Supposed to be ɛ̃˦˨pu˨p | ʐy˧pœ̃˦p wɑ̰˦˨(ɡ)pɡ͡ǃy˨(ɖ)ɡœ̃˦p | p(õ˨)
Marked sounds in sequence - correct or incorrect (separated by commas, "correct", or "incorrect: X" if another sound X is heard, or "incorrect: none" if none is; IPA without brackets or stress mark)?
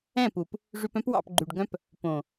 incorrect: none, correct, correct